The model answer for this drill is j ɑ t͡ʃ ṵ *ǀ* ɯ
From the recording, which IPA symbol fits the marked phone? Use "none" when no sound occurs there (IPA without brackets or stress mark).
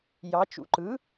ǃ